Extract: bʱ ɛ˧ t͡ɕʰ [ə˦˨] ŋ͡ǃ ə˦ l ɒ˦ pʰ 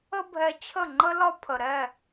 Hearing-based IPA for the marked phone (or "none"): ə˦˨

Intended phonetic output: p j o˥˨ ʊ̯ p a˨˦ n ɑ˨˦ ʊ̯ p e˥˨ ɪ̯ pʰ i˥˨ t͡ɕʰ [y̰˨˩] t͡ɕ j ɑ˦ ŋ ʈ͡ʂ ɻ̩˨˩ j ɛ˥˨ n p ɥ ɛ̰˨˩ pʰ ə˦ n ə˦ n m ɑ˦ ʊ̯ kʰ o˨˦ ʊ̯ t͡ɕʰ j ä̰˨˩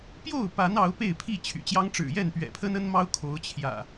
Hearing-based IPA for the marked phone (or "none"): y̰˨˩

